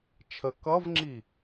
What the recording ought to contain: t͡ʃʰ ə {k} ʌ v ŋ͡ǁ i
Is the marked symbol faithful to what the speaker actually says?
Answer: yes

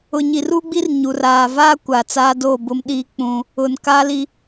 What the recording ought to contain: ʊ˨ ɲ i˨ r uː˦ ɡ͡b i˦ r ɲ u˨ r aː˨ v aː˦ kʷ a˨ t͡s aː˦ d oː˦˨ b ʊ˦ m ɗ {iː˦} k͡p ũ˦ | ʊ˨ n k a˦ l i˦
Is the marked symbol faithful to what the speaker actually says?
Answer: yes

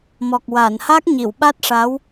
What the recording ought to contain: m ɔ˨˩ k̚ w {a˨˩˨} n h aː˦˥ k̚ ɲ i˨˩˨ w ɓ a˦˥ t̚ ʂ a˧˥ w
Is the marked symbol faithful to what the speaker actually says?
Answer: no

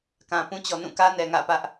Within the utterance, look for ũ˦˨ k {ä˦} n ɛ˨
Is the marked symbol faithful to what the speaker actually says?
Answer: yes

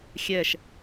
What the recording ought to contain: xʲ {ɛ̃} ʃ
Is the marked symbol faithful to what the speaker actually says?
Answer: no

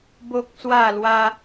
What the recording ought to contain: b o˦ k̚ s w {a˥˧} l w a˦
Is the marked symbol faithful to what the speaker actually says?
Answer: yes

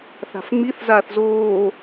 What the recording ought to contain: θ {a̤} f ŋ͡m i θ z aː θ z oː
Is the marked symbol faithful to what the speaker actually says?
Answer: yes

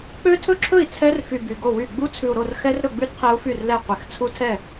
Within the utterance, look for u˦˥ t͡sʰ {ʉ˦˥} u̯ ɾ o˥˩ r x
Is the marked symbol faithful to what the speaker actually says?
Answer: no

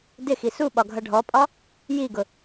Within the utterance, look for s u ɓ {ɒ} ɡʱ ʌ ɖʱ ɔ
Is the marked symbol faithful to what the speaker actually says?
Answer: yes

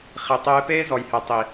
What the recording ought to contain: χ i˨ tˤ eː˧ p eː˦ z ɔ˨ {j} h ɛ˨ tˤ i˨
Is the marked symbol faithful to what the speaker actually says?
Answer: yes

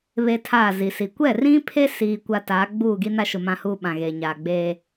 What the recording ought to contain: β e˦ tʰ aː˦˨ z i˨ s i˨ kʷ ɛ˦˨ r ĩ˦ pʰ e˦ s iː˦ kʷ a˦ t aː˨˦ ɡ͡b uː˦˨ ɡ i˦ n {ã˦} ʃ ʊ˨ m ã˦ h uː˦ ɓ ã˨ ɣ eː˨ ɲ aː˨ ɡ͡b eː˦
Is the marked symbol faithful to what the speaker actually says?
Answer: no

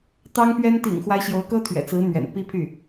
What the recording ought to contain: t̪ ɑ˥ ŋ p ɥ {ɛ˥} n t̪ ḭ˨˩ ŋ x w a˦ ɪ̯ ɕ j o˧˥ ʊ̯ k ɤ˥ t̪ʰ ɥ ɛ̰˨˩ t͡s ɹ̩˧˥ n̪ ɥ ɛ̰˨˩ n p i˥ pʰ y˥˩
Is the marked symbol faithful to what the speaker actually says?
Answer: yes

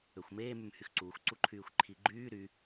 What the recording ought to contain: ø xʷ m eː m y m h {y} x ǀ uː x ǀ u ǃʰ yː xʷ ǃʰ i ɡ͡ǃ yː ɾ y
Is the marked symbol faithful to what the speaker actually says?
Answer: yes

